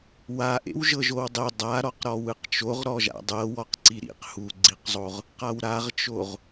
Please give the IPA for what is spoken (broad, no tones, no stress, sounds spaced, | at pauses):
w a ʔ ḛ w ʒ ɤ ʒ o w dˤ e dˤ a ɾ ɔ q ɾ ɔ w ɯ q t͡ʃ o ʁ ɾ ɔ ʒ a̰ dˤ ɤ w ɔ q ǀ i ɾ ḭ q h u ɡ͡ǀ i q zˤ o ʁ | q a w ɾ a ʁ t͡ʃ o ʁ